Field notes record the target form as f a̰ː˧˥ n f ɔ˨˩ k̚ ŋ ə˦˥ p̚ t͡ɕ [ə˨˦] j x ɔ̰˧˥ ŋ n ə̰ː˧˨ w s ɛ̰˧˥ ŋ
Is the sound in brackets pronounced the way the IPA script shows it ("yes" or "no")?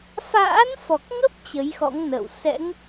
yes